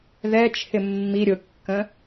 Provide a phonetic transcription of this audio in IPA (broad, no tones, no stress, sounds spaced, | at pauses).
ð ɛ t͡ʃʰ ɪ mː i ɾʲ ʊ kː ə̃